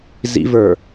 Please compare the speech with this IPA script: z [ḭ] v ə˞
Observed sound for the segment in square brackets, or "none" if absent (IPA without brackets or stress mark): ḭ